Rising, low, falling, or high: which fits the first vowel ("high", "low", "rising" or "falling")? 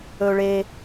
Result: high